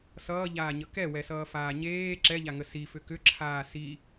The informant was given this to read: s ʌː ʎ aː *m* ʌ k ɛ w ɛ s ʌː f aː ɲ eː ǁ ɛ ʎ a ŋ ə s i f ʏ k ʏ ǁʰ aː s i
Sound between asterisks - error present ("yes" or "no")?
yes